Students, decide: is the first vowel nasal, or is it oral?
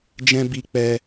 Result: nasal